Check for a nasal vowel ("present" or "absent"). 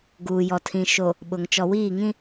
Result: present